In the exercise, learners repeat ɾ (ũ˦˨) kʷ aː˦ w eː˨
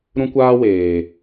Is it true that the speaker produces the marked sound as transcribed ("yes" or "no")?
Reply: no